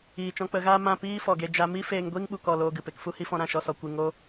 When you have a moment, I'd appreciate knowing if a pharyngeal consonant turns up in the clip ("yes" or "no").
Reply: no